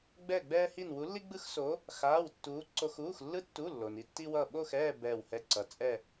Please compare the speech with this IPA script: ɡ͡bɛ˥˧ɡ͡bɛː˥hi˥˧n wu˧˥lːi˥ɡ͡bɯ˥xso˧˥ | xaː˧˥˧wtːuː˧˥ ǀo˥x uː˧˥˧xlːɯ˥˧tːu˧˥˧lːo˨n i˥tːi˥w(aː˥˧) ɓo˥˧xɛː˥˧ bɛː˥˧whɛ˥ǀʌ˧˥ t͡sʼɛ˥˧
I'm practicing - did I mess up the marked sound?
yes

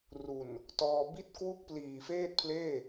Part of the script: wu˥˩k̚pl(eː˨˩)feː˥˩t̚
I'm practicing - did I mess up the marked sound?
yes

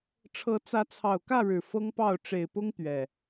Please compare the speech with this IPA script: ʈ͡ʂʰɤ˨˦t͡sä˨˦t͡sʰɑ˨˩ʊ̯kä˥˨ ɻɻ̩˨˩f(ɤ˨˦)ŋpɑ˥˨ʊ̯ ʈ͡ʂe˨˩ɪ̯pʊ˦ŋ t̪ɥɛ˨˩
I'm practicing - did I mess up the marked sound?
yes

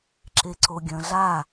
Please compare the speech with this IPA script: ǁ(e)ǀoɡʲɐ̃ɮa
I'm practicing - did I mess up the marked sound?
no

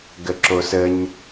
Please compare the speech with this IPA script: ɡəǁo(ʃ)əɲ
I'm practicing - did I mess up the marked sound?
yes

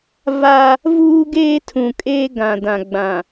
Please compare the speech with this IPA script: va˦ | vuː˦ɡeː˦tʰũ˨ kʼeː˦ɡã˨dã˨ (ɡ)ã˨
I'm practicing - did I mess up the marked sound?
yes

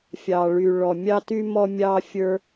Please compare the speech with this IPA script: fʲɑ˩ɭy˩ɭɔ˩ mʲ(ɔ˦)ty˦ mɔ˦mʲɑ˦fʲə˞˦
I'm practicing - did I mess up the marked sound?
yes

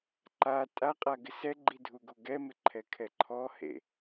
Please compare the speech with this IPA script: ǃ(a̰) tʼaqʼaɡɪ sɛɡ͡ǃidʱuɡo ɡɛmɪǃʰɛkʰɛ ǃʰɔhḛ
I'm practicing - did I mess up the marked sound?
yes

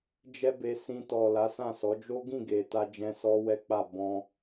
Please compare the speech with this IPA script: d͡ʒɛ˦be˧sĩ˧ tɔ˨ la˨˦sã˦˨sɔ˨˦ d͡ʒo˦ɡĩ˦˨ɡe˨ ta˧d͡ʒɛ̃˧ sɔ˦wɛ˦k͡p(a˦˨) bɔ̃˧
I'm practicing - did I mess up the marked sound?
no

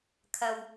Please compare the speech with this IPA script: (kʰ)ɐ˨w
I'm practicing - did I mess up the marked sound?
no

